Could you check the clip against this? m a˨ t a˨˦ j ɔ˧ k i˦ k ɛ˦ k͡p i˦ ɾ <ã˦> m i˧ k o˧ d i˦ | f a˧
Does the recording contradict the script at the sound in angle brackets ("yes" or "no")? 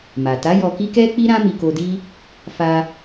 no